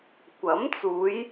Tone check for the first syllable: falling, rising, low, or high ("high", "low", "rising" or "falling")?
rising